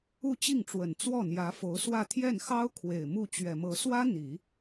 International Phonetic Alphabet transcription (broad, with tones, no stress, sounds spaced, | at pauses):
u˥˧ t͡ɕ i˥˩ ŋ ʈ͡ʂ w ə˨˩ n t͡s w ɔ˥˩ n̪ j ä˧˥ f o˧˥ ʊ̯ s w ä˥˧ t̪ʰ j ɛ˥˩ n x ɑ˥ ʊ̯ kʰ w e˨˩ ɪ̯ m u˥˩ t͡ɕ ɥ ɛ˨˩ m ɤ˧˥ s w ä˥ n̪ i˨˩˦